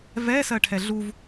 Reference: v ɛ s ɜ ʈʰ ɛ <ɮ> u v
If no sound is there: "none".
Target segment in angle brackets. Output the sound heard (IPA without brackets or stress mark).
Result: ɮ